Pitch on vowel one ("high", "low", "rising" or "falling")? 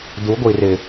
rising